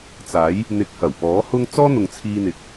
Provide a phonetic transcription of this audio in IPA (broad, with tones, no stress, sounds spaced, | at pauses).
t͡s aː˨˥ j | n̪ ɪ˨ k̚ h ɐ˨˩ w p ɔː˨˥ h ʊ˥ ŋ t͡s ɔː˥ n̪ ʊ˨ ŋ t͡sʰ iː˧ n̪ ɪ˨ k̚